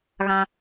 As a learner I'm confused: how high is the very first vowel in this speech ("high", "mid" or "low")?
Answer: low